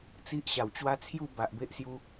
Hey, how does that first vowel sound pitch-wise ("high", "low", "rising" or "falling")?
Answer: high